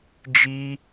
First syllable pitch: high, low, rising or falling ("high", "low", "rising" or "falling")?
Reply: high